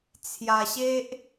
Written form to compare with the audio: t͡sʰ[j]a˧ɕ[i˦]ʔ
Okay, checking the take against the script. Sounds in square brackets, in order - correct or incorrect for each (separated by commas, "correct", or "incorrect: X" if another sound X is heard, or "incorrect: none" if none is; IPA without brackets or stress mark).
correct, incorrect: e˦